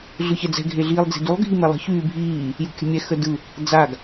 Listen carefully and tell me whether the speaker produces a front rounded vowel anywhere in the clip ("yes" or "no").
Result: yes